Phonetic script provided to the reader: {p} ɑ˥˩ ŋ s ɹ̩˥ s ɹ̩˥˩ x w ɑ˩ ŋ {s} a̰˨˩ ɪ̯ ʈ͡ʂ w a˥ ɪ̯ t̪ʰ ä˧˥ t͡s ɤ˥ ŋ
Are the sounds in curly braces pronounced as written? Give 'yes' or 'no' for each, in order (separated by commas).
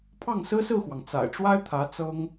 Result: no, no